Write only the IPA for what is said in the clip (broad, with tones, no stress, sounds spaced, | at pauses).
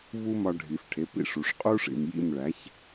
v u˥ m ɒ˧ ɖʱ i˩ f ʈʰ e˩˥ p ḭ˥˩ ʂ u˩ ʂ qʼ u˥ ʂ ḭ˩ m j ḭ˥˩ m ɭ æ˩˥ ç